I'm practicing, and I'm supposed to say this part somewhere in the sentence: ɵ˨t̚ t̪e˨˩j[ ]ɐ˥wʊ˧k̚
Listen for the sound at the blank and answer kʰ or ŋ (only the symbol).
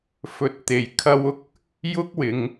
kʰ